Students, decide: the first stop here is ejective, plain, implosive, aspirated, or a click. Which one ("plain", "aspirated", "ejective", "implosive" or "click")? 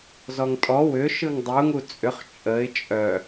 ejective